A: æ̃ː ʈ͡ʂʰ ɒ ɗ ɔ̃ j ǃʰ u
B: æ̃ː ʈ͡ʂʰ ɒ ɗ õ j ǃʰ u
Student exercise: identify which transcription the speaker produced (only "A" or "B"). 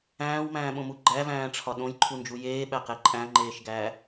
B